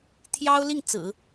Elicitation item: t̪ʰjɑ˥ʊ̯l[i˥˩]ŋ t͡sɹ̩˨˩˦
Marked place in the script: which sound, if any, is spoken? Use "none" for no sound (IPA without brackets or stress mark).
i˥˩